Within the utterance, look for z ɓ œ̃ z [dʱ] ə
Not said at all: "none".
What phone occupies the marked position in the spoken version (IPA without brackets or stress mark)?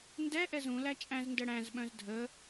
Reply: dʱ